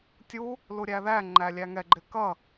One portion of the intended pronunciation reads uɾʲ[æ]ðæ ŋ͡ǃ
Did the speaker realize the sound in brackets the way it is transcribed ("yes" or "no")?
yes